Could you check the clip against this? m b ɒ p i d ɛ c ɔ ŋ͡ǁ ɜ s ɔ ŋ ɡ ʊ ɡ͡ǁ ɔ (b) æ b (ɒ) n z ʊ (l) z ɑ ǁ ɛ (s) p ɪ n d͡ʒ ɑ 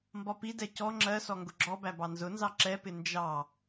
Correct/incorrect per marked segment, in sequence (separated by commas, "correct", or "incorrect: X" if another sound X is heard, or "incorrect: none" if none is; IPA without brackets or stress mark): correct, incorrect: ɑ, incorrect: n, incorrect: none